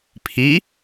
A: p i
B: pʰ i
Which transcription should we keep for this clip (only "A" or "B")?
B